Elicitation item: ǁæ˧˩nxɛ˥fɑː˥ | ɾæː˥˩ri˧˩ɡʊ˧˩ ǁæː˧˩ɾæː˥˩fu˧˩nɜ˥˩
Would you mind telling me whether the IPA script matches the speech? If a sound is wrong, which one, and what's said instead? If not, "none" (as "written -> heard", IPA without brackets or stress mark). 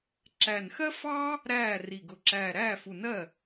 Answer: ɛ˥ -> ɜ˥